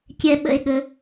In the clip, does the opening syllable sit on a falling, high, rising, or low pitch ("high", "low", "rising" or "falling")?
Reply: high